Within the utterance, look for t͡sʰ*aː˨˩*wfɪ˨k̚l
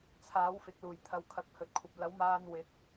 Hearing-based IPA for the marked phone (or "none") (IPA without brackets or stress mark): aː˨˥